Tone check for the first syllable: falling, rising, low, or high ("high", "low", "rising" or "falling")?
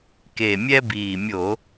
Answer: low